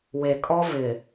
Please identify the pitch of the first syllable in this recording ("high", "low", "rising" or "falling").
low